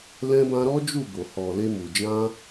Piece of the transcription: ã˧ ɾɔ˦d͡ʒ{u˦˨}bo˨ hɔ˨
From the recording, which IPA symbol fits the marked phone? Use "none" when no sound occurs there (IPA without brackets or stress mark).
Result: u˦˨